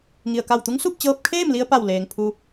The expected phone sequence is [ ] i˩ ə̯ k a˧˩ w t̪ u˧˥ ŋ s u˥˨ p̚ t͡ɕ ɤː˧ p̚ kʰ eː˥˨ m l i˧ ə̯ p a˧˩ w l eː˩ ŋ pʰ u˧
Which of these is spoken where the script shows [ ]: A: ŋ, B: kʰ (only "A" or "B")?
A